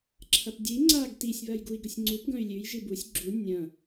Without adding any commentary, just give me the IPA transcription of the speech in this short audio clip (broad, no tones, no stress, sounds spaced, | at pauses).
ǁʰ ɐ p dʲ ɨ i̯ ŋ͡ǀ a ɡ t i sʲ β ɐ j ɡ u i̯ ɡ ɵ sʲ ŋ͡ǀ u p ɡ ɐ̃ y̯ lʲ ʉ j ʒ ɨ b u sʲ ɡ͡ǁ u nʲ ɐ̃